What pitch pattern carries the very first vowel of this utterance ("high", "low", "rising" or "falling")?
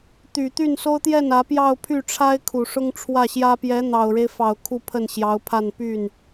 low